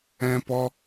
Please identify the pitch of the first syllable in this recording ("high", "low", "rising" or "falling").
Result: high